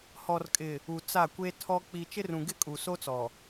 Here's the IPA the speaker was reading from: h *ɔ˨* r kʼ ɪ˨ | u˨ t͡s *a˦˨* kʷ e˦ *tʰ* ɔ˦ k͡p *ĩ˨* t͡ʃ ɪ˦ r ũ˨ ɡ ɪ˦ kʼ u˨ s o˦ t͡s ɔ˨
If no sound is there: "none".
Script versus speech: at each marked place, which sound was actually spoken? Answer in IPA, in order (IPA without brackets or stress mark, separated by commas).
ɔ˨, a˦˨, tʰ, i˨